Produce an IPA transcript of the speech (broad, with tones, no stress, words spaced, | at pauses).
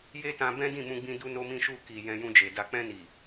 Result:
je˦tã˧ bɛ̃˦dĩ˦˨mũ˧ɡ͡bĩ˧ du˧no˧mĩ˧ʃu˧ ki˨ jɛ̃˧jũ˧d͡ʒe˨ da˨k͡pɛ̃˧ni˨